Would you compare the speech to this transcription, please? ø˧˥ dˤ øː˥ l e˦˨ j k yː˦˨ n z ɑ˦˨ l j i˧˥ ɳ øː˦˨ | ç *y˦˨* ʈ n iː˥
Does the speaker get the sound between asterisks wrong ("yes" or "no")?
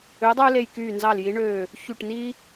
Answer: no